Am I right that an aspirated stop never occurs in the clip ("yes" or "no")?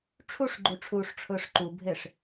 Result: no